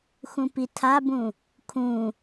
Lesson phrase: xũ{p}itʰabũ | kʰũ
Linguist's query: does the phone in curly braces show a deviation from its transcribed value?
no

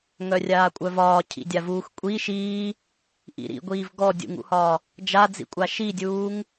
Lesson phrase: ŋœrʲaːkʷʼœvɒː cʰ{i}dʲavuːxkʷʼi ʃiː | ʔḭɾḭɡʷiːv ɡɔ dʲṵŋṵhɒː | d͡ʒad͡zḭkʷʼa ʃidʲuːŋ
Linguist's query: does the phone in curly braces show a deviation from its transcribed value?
yes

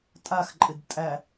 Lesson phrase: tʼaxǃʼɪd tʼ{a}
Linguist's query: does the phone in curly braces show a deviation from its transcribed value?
yes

